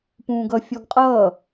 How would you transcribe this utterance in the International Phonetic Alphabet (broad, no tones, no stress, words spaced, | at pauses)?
pũːɡʌ fʲɔɡqʼʌː